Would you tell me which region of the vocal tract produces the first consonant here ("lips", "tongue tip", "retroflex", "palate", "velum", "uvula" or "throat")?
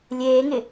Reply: tongue tip